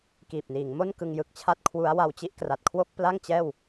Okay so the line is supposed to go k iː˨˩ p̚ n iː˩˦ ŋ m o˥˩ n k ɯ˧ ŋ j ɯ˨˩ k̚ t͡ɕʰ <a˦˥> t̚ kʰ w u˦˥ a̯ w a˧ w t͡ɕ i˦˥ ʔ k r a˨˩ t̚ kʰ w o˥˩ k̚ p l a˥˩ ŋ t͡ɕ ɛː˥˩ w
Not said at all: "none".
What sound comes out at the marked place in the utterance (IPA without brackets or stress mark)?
a˥˩